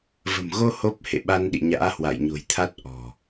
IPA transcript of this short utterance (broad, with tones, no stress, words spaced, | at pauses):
və̤˨˩mɣo˧ ho˦˥p̚ hḛ˧˨ɓa˧nɗḭ˧˨ɲa̰ː˧˥ hwa̰˧˨jɲo̤˨˩jt̪ʰa˦˥t̚ ʔɔ̤˨˩